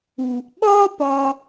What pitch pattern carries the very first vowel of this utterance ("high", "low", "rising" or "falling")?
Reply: low